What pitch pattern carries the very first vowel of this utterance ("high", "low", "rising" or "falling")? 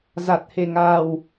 low